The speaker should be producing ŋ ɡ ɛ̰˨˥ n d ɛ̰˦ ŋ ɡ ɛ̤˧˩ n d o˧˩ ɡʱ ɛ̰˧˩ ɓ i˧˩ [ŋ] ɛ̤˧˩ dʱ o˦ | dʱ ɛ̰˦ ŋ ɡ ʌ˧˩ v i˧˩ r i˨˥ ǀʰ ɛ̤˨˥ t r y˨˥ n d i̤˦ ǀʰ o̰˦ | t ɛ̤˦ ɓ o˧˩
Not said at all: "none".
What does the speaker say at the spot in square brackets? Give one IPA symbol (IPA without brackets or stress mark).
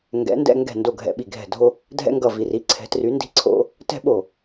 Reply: ɡʱ